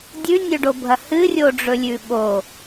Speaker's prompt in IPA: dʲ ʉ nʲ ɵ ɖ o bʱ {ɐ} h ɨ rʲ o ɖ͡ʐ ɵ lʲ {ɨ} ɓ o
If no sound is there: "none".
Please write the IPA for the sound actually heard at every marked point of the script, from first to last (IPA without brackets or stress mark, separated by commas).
ɐ, ʉ